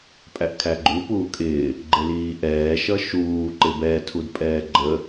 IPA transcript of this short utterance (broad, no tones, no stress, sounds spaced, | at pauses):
pʼ æ ʔ kʰ æ ɡ͡ǃ u p uː kʼ ɪː | ɡ͡ǃ ɪ l iː ʔ ɛː ʃ ʌ ʃ uː ǃ ɪ b ɛ tʰ u d pʼ ɛː ɡ͡ǃ ə